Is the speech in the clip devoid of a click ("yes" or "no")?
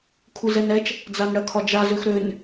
yes